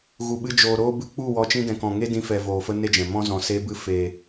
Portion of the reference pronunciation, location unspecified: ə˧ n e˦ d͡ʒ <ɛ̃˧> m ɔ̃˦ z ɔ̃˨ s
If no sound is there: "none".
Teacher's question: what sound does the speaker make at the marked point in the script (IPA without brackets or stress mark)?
ɛ̃˨